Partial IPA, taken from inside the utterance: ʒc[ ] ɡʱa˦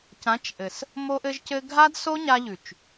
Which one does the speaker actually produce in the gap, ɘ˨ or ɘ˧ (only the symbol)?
ɘ˧